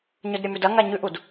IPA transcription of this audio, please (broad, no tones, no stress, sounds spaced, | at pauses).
ɲ ɵ d ɾʲ ɐ m ʉ d ɐ ŋ a ɲ ʉ ʔ u d